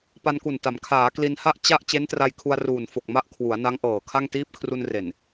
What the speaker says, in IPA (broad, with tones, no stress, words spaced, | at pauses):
pa˧nku˨˩nta˩˦m kʰaː˩˦kli˧nha˥˩ʔ t͡ɕa˥˩ʔ t͡ɕe˦˥ntra˧j kʰu˧a̯ruː˨˩n fo˨˩k̚ma˦˥ʔ kʰwu˩˦a̯na˦˥ŋʔɤː˨˩kʰa˥˩ŋ tiː˦˥p̚kʰru˧nre˨˩n